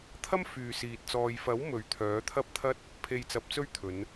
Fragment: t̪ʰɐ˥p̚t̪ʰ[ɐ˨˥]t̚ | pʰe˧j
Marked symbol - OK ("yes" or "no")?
no